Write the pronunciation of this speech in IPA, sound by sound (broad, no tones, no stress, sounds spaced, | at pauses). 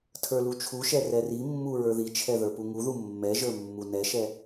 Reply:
tʰ ə˞ l u t͡ʃʰ u ʃ ɛ r ɛ r i mː u ɹ ə˞ ð i t͡ʃʰ ɛ ð ə˞ p u ŋ u ð u mː ɛ ʒ ə˞ mː u n ɛ ʃ ɛ